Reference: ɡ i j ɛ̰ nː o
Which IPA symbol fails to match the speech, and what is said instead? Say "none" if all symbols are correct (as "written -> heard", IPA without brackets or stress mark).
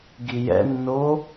none